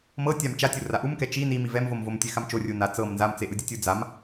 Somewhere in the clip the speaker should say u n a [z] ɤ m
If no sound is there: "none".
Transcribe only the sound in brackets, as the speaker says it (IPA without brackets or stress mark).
t͡s